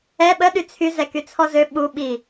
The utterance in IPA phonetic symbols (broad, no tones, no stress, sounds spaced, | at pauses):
ɛ ɓ ə ɗ y t͡sʰ y z ɛ k y t͡sʰ ɔ z ø ɓ u ɓ i